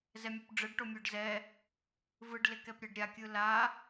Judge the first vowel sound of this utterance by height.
mid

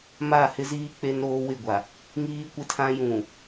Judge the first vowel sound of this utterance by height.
low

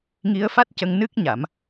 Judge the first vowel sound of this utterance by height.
high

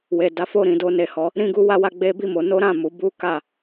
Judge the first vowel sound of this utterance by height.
mid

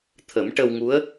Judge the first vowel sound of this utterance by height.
mid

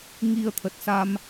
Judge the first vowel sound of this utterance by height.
high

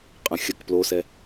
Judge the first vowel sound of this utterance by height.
mid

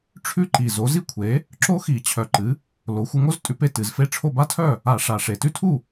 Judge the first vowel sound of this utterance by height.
high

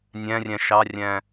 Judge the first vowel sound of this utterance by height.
low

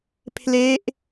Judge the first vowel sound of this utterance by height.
mid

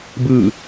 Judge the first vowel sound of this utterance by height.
high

